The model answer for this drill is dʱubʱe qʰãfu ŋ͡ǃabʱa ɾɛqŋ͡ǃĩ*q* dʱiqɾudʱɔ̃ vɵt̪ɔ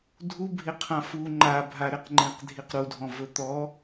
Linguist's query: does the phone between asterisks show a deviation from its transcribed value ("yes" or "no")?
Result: no